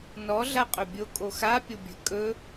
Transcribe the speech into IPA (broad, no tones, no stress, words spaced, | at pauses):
nɔ ɮaqʼɵbʲo kʼoxa pʲobʲə̤ kʼɵ